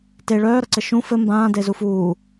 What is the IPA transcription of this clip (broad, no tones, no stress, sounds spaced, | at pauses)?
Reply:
t e ɭ œː ɾ ʌ ǀ ɘ ʃ ũ f ɘ m b ãː d e z u f uː